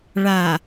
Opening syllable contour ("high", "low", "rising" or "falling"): low